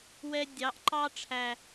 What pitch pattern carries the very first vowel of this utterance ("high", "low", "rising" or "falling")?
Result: high